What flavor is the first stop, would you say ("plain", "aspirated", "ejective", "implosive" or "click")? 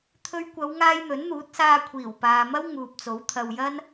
aspirated